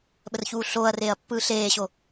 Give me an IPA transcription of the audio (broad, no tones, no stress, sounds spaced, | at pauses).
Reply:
ɓ ə r ç uː ɬ oː ɐ̯ r eː ɐ̯ pː ɯː ɬ eː ɕ o